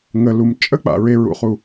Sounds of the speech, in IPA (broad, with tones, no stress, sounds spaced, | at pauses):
ŋ ə˨ l u˨ m t͡ʃʼ ə˦ k͡p a̰˨ ɹ e˨ ɹ ṵ˨ χ u˨